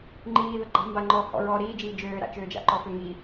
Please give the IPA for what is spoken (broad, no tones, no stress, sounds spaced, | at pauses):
ŋ͡ǃ iː ð ə ɡ͡ǃ a̤ m b a ŋ͡ǃ ɔ h ɔ̰ ɹ ɔ ɾ iː d͡ʒ iː d͡ʒ øː ɾ a̰ t͡ʃ øː d͡ʒ a̰ ǃ ɔ f ø ŋ i